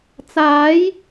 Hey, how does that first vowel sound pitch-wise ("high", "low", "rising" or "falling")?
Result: rising